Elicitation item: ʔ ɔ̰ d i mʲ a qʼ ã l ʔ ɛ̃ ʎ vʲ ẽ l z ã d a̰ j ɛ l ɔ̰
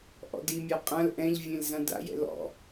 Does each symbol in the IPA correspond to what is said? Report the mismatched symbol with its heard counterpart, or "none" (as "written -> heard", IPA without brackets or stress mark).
ɛ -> ɛ̰